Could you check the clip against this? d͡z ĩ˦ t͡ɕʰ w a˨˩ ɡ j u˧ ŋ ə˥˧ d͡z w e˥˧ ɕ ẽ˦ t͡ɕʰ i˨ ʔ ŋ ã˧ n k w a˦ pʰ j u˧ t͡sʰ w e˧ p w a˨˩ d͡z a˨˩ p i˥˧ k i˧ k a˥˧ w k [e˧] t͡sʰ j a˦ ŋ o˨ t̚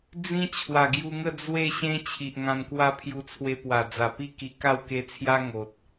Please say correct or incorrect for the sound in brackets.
correct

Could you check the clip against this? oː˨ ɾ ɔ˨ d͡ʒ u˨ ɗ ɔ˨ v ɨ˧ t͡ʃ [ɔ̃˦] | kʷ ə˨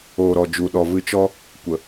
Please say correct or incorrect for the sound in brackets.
incorrect: ɔ˦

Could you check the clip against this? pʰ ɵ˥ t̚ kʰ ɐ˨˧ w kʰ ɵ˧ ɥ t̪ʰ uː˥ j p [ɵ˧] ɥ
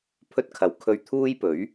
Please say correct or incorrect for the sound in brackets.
incorrect: ɵ˨˥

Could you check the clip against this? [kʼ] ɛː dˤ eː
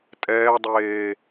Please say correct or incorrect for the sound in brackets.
incorrect: tʼ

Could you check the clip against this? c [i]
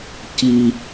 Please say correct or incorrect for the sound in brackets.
correct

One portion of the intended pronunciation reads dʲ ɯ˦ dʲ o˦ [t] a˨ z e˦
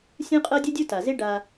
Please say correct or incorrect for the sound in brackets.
correct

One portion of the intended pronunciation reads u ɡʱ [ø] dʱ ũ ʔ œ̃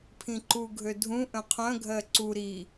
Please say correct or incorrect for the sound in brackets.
correct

